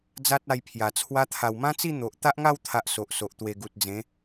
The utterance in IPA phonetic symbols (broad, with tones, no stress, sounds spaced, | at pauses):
d͡z a˦ t̚ a˧ j pʰ j a˨˩ t͡sʰ w a˧ t̪ʰ a˨˩ w m ã˦ t͡s i˥˧ n̪ o˨ ʔ t̪ a˦ ʔ ŋ a˥˧ w t̪ʰ a˨ ʔ s o˨ ʔ s o˨ ʔ t̪ w e˨˩ ɡ u˨ t̚ d͡z ẽ˨˦